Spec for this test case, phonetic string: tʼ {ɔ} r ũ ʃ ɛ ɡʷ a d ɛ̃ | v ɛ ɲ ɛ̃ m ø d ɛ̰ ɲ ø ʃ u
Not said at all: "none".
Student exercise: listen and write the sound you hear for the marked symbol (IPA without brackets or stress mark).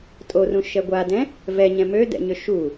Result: o